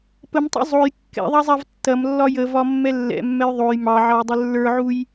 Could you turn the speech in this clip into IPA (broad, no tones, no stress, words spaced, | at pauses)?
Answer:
pəmtˤṵ zˤoj kːɛ̰ðˤɑzˤav tːɐmlːɒ jəvɒmːɛ lːɛ̰mːɛj ðˤoj mɑʕɑjdˤə lːə˞ʕuj